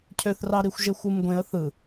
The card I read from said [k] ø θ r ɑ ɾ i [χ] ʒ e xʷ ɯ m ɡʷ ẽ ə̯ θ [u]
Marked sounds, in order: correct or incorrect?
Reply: incorrect: cʰ, incorrect: xʷ, incorrect: ɯ

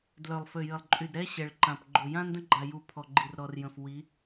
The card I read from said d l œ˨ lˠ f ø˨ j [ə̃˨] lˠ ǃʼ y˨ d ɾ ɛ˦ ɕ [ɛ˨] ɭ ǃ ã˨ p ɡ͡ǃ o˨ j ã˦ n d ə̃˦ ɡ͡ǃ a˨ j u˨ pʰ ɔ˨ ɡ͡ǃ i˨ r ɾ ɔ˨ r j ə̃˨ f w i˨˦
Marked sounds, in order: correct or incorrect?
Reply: incorrect: ə˨, correct

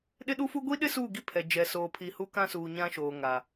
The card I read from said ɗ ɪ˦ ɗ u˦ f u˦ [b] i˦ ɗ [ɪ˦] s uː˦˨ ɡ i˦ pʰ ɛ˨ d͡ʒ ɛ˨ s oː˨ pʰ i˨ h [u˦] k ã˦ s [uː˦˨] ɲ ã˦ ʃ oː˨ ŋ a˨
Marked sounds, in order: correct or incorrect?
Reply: incorrect: ɡʷ, correct, correct, incorrect: uː˨

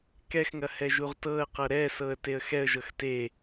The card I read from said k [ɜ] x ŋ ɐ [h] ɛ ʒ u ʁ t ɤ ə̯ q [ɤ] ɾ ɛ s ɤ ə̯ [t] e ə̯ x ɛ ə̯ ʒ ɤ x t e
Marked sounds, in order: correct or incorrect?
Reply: incorrect: ɛ, correct, correct, correct

